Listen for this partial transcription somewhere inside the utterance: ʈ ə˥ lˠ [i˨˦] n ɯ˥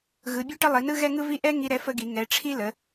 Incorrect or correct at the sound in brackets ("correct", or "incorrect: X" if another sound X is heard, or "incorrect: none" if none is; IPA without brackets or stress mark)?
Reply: correct